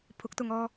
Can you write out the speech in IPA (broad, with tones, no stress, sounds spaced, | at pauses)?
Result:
pʰ ʊ˨˥ k̚ t̪ ʊ˨ ŋ ɔː˧